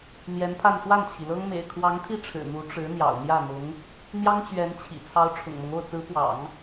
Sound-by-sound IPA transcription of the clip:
n̪ j ɛ˧˥ n pʰ a˥˧ n x w a˥˩ n t͡ɕʰ i˩ l ɤ˥ ŋ m ḛ˨˩ ɪ̯ kʰ w ɑ˧˥ ŋ t̪ʰ i˥˩ ʈ͡ʂʰ ɻ̩˨˩ n̪ u˧˥ ʈ͡ʂ ɻ̩˧˥ n̪ j ɑ̰˨˩ ʊ̯ n̪ j ä˥˩ n̪ ʊ˧˥ ŋ | n̪ j ɑ˥ ŋ t͡ɕ ɥ ɛ˧˥ n t͡ɕʰ ḭ˨˩ t͡sʰ ɑ˧˥ ʊ̯ ʈ͡ʂʰ ʊ̰˨˩ ŋ m ɤ˦ ŋ o˥˩ ʊ̯ t͡s ɹ̩˧˥ p w ɑ̰˨˩˦ ŋ

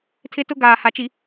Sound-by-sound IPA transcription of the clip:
tʰ ɪ˦ t ʊ˦ ɡ aː˨ h a˨ t͡ʃ i˨

